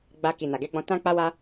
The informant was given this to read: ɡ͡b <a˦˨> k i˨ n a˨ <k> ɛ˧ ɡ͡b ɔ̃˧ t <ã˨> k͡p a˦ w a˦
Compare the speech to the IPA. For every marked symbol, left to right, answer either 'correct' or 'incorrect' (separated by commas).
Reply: incorrect, incorrect, incorrect